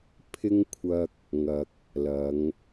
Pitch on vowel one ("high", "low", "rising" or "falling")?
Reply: high